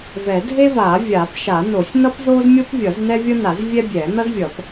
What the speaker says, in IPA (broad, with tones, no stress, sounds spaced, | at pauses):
v ɛ˨˩˦ dʱ e˥ v aː˨˩˦ vʲ aː˨˩˦ p ʃ a˨˩˦ n o˨˩˦ sʲ n ʌ˥ p z oː˥ z mʲ o˥ p vʲ ʌ˨˩˦ z n ɛ˥ vʲ ʌ˥ n a˨˩˦ z vʲ ɛ˥ bʲ ɛː˨˩˦ n ʌ˥ z vʲ ʌ˨˩˦ p